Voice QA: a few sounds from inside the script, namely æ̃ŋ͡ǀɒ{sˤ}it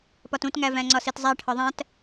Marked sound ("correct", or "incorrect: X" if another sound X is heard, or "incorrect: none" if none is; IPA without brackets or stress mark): incorrect: s